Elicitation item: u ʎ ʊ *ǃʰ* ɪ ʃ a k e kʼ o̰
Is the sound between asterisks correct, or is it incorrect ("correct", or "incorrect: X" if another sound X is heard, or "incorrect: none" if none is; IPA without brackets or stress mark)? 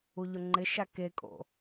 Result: incorrect: ŋ͡ǃ